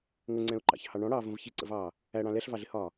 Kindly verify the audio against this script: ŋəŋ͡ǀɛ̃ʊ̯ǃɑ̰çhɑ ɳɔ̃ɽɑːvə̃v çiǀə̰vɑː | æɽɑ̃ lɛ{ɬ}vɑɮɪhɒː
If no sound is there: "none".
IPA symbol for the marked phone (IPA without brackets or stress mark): ɬ